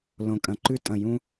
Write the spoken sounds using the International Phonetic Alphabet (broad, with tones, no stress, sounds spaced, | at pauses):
l õ˨ kʼ ɐ̃˨ ǃ ʉ˦ tʼ ɐ̃˨ j ũ˦